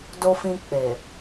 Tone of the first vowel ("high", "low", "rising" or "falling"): low